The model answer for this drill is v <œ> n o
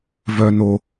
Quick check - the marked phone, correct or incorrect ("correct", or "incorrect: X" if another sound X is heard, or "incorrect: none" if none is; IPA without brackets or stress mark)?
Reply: correct